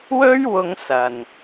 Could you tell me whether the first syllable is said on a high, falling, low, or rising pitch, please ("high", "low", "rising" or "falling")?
high